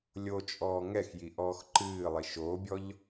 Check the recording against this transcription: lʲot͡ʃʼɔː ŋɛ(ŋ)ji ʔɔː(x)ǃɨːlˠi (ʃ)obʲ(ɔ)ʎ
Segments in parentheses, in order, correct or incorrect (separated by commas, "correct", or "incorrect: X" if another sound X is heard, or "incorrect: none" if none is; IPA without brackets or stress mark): incorrect: x, correct, correct, correct